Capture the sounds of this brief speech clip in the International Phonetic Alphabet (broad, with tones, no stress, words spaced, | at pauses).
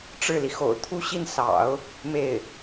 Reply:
ʈ͡ʂɻ̩˥˩li˩xo̰˨˩ʊ̯ t̪ʰu˥ɕi˥˩n sɑ̰˨˩˦ʊ̯ | me˥˩ɪ̯